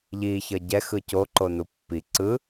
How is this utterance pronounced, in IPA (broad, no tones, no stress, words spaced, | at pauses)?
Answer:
ʎi çʌɟɛ xɯco ǃonupːi ǀɯ